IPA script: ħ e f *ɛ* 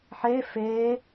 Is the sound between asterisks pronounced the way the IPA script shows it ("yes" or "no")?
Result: no